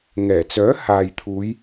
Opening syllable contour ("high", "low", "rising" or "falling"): low